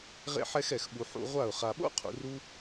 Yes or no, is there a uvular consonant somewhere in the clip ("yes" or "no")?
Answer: yes